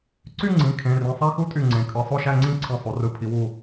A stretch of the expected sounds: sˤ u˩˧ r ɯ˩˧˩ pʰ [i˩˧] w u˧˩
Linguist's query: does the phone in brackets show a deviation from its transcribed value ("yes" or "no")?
no